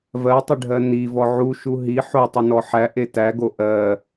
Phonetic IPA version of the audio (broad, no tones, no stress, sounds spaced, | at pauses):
v ɜ tˤ ɪ ɖʱ ɜ n i v ɔ ʕ u ʃ u ɦ i ħ o tˤ ɪ n ɔ ħ æ ʔ e t æ ɡ o ʔ ɜ